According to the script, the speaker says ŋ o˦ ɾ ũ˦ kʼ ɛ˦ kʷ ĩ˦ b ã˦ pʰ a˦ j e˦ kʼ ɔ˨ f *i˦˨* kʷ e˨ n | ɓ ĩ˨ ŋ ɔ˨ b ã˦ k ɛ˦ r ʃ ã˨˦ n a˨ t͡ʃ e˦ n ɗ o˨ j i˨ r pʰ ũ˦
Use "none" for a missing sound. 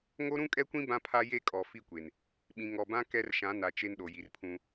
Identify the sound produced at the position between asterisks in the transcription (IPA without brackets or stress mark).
i˦˨